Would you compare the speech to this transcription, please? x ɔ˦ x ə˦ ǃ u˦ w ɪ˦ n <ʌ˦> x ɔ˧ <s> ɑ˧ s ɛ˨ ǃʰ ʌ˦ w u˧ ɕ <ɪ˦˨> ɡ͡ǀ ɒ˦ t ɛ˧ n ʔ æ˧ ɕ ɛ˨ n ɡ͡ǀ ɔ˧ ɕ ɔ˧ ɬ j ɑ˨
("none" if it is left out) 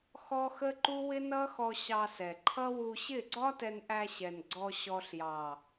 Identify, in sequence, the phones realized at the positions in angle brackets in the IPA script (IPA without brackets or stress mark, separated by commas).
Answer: ʌ˦, ɕ, ɪ˦˨